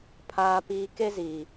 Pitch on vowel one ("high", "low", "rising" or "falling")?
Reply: low